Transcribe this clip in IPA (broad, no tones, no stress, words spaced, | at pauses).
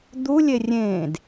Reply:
d̪ulʲe rʲẽːd